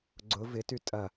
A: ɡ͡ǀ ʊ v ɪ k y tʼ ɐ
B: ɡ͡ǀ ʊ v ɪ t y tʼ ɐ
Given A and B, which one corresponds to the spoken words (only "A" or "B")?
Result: B